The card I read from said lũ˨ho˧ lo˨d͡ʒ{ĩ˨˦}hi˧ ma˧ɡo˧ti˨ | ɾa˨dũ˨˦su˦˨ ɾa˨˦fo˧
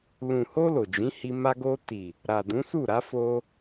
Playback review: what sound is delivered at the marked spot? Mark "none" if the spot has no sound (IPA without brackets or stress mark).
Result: ĩ˨˦